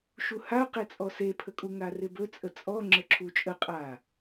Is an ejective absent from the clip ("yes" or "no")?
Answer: no